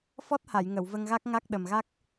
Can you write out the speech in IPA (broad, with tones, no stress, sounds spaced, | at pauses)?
f ɔ˦˥ t̚ h a˨˩˨ j ŋ ə˨˩˨ w v ə˧ ŋ ɣ a˦˥ k̚ ŋ a˦˥ k̚ ɗ ə˨˩ m ɣ a˦˥ k̚